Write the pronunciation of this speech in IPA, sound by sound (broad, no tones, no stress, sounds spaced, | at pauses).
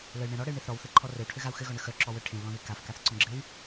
l ə y̯ ɳ ẽ ɾ ɔ ɽ ɘ y̯ ɳ e θ ɾ ɔ w θ ɘ ǃʰ ɔ r ɘ w ʈʰ ɘ ɣ a u̯ x ɘ ɣ ɔ ɳ ə x œ ǁ ɔ w œ ʈʰ ẽ w l ɔ̃ ð e k a f k a θ ǀ ɔ̃ ɡ͡ǁ ɘ y̯